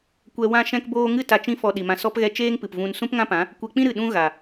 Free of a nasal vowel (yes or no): no